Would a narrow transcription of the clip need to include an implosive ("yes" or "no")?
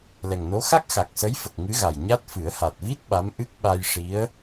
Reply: yes